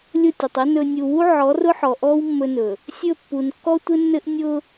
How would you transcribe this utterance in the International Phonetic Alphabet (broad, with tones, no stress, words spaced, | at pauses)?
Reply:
lʲʊ˦˨tʲʊ˨tˤɘ˦ nɵ˨nʲu˨wu˦ ʕɔ˨˦rʊ˦ħɔ˨ ʔɔ˦w mːɵ˦nɵ˨ | sʲɵ˦˨ pːu˨nkːɔ˦tʷɘ˦nːɘ˦ʔ nʲʊ˦